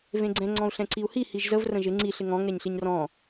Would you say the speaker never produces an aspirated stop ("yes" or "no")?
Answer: yes